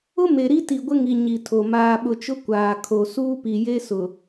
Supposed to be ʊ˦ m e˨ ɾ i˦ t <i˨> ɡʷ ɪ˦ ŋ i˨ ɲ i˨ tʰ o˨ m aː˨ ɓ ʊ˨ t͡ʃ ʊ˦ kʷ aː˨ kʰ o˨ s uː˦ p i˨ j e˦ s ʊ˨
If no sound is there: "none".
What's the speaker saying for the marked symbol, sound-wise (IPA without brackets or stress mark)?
i˨